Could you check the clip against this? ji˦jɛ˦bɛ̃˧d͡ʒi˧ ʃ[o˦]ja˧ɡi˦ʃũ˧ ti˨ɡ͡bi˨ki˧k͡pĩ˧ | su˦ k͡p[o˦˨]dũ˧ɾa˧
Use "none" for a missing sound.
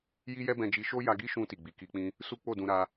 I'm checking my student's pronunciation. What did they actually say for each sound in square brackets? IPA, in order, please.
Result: o˦, o˦˨

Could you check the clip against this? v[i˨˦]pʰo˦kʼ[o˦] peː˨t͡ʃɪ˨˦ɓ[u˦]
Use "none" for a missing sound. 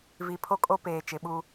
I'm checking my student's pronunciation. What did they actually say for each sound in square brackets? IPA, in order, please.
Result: i˨˦, o˦, u˦

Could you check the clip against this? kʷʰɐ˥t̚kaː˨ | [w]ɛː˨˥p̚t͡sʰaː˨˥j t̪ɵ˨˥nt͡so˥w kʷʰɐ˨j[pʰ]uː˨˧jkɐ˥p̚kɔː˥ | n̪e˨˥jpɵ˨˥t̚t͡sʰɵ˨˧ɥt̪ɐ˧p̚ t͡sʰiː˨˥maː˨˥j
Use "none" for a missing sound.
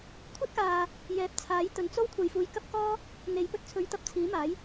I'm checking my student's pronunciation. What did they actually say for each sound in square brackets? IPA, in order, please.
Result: j, f

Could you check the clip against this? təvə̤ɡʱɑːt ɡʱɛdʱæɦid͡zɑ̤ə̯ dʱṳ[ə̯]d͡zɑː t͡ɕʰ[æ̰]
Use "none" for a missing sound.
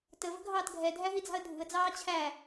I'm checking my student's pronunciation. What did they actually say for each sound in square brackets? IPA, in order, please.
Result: ə̯, æ

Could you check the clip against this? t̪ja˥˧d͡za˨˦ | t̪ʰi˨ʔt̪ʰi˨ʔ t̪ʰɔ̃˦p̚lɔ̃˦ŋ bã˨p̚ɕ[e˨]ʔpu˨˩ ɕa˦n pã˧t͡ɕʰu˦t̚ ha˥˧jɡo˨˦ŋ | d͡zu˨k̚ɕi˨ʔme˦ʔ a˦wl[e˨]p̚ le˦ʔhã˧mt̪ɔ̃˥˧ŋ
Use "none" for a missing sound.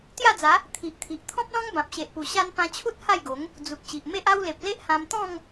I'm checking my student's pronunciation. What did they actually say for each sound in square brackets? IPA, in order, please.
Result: e˨, e˨

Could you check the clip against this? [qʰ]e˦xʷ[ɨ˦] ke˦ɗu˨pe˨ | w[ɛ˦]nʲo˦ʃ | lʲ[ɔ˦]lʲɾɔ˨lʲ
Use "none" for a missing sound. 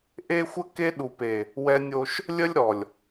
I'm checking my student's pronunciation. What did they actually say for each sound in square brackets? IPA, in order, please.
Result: ʔ, ə˦, ɛ˦, ə˦

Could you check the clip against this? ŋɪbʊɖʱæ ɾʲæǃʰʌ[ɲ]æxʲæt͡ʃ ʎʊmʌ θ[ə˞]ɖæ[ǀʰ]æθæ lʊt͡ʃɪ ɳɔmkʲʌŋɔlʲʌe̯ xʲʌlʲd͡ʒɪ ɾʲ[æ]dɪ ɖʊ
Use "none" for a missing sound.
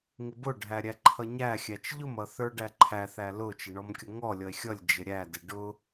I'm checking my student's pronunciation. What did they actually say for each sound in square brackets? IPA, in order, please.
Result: ɲ, ə˞, ǃʰ, æ

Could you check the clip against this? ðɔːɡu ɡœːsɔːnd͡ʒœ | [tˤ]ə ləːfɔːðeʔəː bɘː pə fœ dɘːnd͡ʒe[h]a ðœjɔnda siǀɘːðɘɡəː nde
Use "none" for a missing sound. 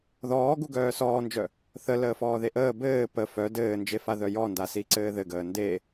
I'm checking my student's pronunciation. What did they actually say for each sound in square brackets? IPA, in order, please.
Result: θ, f

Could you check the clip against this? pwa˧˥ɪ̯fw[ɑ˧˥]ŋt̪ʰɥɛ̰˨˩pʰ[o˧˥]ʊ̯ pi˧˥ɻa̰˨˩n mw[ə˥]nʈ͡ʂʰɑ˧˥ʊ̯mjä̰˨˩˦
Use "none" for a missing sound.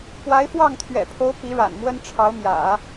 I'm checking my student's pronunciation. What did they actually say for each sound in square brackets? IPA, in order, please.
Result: ɑ˥˩, o˧˥, ə˥

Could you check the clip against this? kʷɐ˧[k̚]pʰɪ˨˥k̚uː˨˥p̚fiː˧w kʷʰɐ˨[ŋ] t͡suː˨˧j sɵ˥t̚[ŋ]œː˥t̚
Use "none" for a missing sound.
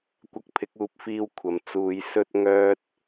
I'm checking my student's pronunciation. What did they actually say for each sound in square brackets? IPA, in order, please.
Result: k̚, m, ŋ

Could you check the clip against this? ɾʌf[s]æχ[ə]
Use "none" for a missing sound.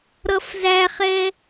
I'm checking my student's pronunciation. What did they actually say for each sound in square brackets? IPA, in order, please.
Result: z, ɛ

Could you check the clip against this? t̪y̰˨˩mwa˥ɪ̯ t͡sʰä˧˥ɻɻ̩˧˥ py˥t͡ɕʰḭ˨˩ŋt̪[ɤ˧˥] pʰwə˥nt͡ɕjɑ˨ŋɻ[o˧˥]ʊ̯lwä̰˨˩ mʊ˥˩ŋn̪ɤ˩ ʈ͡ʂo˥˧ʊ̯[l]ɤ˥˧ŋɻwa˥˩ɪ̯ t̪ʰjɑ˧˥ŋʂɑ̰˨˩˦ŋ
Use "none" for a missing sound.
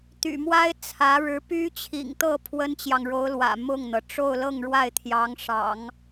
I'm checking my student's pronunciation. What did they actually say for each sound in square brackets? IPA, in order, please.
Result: ɤ˥˩, o˧˥, l

